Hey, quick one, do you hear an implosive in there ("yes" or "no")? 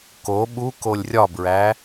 yes